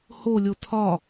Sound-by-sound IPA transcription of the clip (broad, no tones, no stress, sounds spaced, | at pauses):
h o lʲ o tʰ ɒ